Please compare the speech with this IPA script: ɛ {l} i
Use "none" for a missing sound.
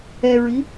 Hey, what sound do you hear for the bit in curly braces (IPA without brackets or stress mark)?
ɹ